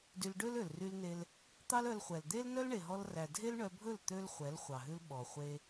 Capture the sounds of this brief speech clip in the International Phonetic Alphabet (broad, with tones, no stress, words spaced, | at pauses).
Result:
dy˧lɖø˦lø˨l ry˧lne˧l | t̪ɑ˦lœ˧lχʷɛ˨l d̪e˦lnœ˦l ɳe˨ɦɔ˧lræ˨dʱe˦l ɳœ˧bʱɵ˦˨l t̪ø˦lχʷɛ˨˦l χʷɑ˨ɦʉ˦lɓɔ˨ χʷe˧